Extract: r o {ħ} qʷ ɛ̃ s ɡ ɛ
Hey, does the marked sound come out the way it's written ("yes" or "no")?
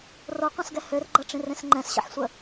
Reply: no